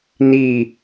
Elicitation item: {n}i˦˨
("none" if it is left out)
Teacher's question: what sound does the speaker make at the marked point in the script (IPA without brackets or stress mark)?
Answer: n